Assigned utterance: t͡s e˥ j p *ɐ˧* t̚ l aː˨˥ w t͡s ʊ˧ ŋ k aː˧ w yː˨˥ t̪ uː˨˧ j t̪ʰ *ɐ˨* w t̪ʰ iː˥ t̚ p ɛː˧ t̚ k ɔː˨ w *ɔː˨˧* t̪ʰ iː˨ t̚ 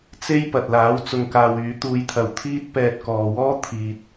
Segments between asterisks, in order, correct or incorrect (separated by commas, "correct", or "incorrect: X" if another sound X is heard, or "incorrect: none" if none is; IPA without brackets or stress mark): incorrect: ɐ˨, correct, incorrect: ɔː˥